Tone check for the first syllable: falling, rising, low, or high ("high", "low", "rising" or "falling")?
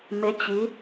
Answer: rising